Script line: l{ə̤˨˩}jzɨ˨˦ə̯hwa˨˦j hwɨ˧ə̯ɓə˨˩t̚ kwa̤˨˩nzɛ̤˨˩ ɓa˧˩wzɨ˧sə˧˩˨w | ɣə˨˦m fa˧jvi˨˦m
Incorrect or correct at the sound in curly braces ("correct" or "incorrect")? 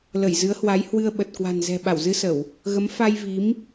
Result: incorrect